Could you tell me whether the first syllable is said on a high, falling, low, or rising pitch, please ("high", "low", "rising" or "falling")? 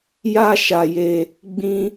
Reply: high